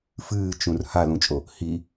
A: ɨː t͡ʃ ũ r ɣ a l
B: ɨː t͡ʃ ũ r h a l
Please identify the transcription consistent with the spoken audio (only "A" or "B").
B